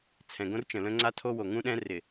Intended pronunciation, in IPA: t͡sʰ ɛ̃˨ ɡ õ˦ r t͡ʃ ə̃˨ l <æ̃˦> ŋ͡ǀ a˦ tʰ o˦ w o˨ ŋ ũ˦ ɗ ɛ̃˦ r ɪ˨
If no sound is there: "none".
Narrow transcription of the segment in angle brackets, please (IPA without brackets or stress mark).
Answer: ə̃˦